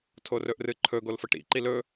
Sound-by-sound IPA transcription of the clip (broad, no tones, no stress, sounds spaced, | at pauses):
tʰ o r ɵ ʔ r ɨ ǃʰ ɵ ɡ o l f ɐ ʈ ḭ ǃ i l ɵ